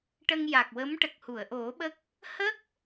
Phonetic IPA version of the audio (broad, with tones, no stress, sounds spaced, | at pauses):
ʈ ə˧ ŋ j a˨˩ k̚ w ə˧˥ m ʈ ə˨˩ k̚ h u˨˩˨ ə̯ ʔ o˨˩˦ ɓ ə˦˥ k̚ | h ə˦˥ k̚